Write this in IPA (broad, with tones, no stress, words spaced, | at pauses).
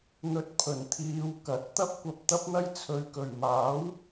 n̪ɵ˨t̚ pʰɵ˨˩nt̪ʰiː˨˧w kɐ˨˥t̚ t̪ɐ˥p̚kʷɐ˧p̚ t̪ɐ˥p̚n̪ɐ˥j t͡sʰɵ˨ɥkɵ˨˩ɥ maː˨˥w